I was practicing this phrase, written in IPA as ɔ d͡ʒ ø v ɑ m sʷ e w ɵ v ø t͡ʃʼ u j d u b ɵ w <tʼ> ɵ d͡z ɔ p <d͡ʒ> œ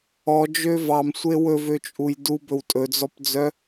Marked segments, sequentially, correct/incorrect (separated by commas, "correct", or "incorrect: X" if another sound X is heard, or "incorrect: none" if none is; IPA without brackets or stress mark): correct, incorrect: d͡z